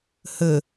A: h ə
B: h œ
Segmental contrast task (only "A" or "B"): A